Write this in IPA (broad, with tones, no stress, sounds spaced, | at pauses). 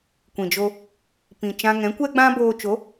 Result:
kʷ ĩ˨ d͡ʒ o˧ | p ĩ˨ t͡ʃ ã˧ ŋ ɛ̃˨˦ kʷ ɛ˦ ɡ͡b ã˦ b oː˧ t͡ʃ o˨˦